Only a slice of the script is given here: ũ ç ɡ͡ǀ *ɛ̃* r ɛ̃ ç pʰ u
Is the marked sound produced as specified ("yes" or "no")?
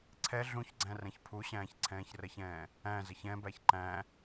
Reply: no